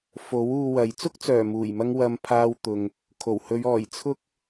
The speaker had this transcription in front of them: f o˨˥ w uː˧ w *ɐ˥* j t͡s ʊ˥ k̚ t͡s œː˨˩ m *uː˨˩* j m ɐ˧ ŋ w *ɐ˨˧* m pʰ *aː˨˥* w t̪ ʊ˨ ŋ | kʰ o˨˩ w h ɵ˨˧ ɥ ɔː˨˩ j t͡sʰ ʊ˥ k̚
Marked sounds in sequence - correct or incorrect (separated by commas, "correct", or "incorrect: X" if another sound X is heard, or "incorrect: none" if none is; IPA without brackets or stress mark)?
incorrect: ɐ˨˧, correct, incorrect: ɐ˧, incorrect: aː˧